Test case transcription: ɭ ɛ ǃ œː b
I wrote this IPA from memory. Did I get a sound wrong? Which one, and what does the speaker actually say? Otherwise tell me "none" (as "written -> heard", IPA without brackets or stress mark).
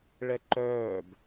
none